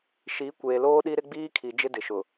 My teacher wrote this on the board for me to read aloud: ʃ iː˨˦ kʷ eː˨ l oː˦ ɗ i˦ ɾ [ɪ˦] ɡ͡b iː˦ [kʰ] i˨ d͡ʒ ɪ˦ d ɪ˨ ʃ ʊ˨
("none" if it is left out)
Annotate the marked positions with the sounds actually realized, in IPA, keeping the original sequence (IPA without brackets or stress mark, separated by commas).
ɪ˦, kʰ